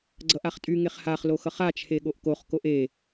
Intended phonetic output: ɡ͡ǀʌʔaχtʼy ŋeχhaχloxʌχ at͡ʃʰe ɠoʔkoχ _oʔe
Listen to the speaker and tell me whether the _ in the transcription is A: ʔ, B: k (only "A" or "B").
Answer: B